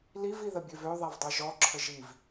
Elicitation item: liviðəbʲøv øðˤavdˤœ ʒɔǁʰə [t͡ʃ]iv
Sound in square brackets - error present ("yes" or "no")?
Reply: yes